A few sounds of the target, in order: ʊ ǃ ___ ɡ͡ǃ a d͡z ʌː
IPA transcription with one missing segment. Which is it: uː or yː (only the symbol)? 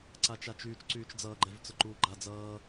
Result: uː